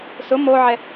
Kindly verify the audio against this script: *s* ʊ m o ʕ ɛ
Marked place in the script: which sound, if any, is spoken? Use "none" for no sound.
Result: s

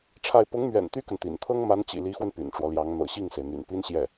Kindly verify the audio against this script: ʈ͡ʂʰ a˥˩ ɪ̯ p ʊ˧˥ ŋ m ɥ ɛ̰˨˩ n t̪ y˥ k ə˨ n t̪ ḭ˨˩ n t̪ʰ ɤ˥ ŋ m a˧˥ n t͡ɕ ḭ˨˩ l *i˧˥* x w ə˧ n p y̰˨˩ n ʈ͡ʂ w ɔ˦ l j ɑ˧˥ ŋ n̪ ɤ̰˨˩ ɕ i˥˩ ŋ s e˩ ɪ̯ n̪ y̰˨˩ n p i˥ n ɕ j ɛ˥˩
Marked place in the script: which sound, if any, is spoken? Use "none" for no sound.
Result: i˧˥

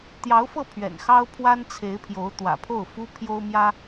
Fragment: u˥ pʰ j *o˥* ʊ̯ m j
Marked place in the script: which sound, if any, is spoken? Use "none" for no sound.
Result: o˥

